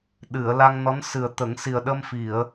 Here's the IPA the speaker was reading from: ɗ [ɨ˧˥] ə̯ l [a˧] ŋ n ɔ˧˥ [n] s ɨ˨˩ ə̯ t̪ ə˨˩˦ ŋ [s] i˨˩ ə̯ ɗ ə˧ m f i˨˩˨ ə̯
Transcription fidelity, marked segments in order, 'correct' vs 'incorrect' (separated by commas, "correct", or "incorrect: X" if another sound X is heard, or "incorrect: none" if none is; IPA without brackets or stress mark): incorrect: ɨ˨˩˨, correct, correct, correct